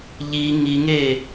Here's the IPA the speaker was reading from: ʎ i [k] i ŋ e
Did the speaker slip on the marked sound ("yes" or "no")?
yes